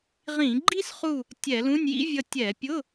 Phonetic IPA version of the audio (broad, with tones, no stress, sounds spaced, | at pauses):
ʁ ĩ˧˩˧ ɡ͡ǃ i˥ s χ u˦˨ | tʲ ɛ˧˩˧ l ũ˧˥˧ nʲ j ḭ˥ vʲ ʌ˦˨ tʲ ɛ˧˩˧ pʲ ʊ˧˥˧